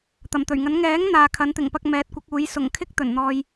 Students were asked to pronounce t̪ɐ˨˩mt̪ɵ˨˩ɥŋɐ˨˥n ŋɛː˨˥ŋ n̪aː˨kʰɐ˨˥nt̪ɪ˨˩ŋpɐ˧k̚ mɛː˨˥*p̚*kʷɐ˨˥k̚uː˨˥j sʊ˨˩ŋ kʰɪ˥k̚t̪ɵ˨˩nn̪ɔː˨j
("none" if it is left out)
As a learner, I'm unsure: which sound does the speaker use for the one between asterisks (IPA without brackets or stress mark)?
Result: t̚